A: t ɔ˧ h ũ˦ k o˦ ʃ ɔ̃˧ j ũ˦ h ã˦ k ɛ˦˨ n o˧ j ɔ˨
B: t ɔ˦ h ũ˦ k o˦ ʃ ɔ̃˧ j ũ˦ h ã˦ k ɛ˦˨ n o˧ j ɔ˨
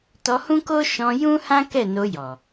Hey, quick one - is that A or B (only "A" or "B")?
A